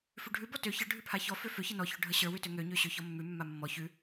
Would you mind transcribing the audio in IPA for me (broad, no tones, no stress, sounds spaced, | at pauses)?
f ʉ ɖʱ ʉ b ɔ t ø ç ə ɖʱ ʉ pʰ a ç ɔ f ø f ø ç ə n ɔ ç ø ɖʱ ə ɕ ə˞ w ʉ t ø ŋ ø ɲ ø ɕ ø ç ɔ mː ʉ mː a mː ɔ ç ʉ